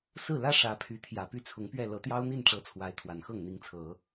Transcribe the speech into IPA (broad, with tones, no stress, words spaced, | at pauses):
sɹ̩˥˩lä˥ ʂä˧˥pʰy˧˥ t̪ʰjä˨˩py˥˩t͡sʰʊ˧˥ŋpɥɛ˥˩ lɤ˧˥t̪jɑ˥ʊ̯n̪i˥˩n ʈ͡ʂɤ˧˥ t͡sʰwa˧˥ɪ̯ t̪ʰwa˨˩nxɤ˥˩ŋ n̪i˧˥ŋt͡sʰɤ˨˩˦